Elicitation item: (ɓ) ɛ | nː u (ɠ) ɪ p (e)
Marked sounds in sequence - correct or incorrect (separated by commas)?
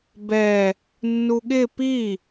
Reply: incorrect, correct, incorrect